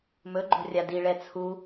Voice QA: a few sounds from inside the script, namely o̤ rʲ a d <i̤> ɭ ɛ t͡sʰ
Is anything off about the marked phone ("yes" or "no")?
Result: yes